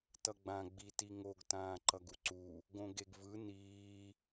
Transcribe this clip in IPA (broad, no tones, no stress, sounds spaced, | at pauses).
t ʌ ɡ͡b ã ɡ͡b i t i ŋ o ɡ t ãː ǃ ʌ ɡ u ǀ u | ɡ õ ɡ e ɡ v ɯ n iː